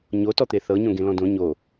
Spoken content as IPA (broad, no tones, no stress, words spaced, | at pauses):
ɲotɔt̪e θɤɲõ ɡẽlɔ̃dõ ɲo